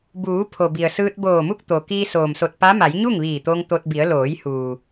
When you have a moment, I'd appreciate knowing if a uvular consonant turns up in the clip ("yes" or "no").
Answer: no